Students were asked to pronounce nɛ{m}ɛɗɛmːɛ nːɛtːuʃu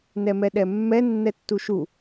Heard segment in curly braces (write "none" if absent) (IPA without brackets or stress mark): m